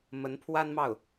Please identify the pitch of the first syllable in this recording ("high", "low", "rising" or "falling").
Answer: rising